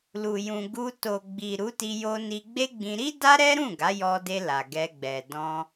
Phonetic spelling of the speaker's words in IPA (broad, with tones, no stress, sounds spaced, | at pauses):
l u˨ j ũ˨ ɡ u˧ t o˨ ɡ͡b i˨ ɾ u˨˦ t i˧ j o˧ n i˧ ɡ͡b e˦ ɡ͡b ĩ˧ ɾ i˦ d a˦ ɾ ɛ˦ ɾ ũ˦˨ ɡ a˨˦ j ɔ˧ d e˧ l a˨ ɡ ɛ˧ ɡ͡b ɛ˨ d ɔ̃˧